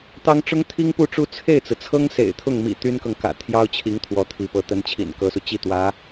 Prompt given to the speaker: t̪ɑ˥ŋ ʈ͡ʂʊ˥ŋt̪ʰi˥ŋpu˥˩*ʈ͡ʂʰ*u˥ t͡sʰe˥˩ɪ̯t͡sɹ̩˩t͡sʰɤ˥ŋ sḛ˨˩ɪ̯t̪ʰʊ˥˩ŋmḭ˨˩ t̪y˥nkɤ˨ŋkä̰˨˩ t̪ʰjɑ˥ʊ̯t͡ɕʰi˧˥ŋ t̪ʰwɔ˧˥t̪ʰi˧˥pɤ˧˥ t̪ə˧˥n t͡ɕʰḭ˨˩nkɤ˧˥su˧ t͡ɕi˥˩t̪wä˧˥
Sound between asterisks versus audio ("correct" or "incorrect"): incorrect